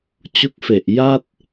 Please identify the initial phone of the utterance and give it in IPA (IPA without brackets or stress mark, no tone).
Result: t͡ɕ